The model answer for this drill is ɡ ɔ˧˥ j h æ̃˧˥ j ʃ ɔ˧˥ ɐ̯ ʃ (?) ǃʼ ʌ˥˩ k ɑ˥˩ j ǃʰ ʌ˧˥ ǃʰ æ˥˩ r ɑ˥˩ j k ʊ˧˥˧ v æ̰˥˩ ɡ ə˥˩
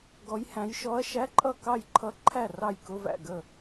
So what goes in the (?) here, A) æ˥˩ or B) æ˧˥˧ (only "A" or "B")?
B